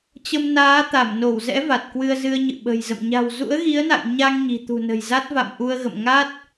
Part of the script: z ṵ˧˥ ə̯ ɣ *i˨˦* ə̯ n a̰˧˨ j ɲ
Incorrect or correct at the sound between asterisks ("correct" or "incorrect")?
correct